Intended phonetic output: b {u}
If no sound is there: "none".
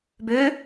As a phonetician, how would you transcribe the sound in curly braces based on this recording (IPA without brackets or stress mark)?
ø